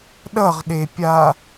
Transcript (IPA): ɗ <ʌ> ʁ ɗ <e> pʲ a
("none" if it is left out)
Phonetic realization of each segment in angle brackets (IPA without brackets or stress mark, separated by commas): ʌ, e